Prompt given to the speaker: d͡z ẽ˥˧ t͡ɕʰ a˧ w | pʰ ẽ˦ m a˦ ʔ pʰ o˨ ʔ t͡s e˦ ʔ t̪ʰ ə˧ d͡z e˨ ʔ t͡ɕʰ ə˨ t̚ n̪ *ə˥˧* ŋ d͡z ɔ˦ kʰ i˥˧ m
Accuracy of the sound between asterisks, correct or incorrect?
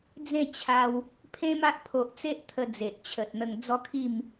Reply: incorrect